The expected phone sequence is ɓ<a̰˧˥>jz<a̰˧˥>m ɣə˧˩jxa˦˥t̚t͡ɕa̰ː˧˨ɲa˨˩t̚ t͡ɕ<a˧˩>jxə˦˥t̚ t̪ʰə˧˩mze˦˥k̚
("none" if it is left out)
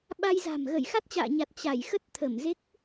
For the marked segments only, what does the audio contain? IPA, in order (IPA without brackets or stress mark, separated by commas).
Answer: a˧, a̤˨˩, a˧˩